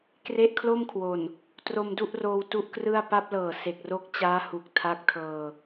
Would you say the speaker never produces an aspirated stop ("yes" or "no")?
no